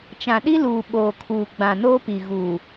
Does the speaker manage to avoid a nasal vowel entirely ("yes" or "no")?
no